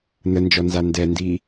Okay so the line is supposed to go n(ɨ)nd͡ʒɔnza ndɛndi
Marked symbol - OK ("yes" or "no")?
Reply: no